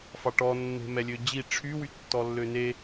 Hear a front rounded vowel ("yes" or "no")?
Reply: yes